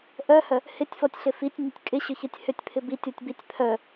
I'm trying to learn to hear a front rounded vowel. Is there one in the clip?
yes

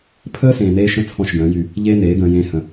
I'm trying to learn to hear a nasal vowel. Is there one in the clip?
yes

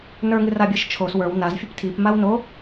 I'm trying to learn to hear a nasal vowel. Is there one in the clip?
no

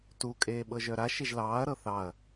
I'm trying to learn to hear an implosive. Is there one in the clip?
yes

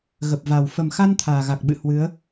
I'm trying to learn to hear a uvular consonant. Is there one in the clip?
no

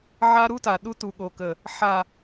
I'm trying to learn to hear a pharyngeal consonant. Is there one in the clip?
yes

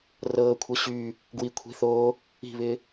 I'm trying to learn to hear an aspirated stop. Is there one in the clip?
yes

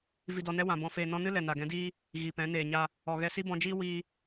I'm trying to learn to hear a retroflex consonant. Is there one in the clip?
no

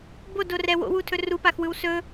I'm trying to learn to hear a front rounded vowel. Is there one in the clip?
no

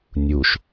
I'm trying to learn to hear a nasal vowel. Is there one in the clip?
no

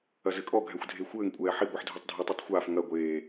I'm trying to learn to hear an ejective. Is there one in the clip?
yes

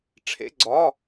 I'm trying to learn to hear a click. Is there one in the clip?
yes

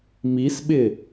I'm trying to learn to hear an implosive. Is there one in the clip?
yes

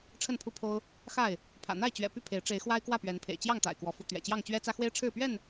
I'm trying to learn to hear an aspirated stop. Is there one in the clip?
yes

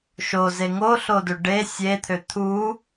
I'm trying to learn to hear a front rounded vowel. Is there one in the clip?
yes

